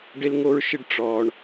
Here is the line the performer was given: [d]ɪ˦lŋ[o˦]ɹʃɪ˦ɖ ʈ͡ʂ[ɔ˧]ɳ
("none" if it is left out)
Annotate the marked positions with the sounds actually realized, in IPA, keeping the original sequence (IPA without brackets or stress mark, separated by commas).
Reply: ɖ, o˦, ɔː˧